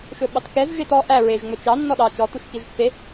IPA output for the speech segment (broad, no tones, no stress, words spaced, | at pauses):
ʃɵɓɑtkɛz ʒetɔ ʔæ ɹeʒ ŋ͡mɵt͡ʃɑ nːɔɗɑ t͡ʃɔ tuʃkiʒpːe